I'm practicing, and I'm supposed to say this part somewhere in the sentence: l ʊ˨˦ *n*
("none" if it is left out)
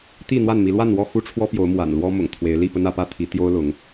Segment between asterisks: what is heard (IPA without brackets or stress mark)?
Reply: ŋ